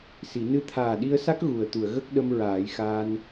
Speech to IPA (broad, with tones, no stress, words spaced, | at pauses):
si˨˩˦ nɨ˧˥t̪ʰaː˨˩ɗi˧ə̯sa˦˥k̚ ɣu˨˩ə̯t̪u˨˩˨ə̯ɣə˦˥k̚ɗə˧m ɹaː˨˩˦jxaː˧n